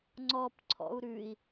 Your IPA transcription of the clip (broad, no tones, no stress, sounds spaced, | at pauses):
ŋ͡ǀ ɔ p ǀʰ ɔ̰ u̯ ɾ ʉ i̯